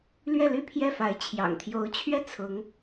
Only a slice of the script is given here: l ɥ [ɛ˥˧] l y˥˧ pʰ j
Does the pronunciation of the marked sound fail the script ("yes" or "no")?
no